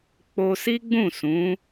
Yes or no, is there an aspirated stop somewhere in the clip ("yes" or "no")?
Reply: no